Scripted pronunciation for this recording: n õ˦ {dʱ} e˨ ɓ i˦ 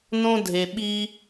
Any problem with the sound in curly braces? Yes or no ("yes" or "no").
no